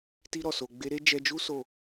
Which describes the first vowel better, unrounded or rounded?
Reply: unrounded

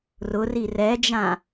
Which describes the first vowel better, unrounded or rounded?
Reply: rounded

